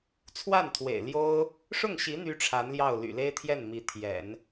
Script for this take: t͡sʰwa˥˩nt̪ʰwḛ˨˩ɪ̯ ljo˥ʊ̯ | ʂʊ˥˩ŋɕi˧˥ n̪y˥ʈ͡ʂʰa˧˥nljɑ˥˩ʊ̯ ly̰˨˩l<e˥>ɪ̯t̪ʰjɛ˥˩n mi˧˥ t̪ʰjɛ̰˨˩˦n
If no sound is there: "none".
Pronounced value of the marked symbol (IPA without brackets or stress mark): e˥